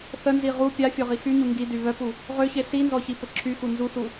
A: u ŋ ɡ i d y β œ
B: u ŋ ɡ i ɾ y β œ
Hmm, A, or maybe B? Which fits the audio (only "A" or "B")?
A